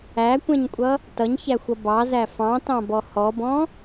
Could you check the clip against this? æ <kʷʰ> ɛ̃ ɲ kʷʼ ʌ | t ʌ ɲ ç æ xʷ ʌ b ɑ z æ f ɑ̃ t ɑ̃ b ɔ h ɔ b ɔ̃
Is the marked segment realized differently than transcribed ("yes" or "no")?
yes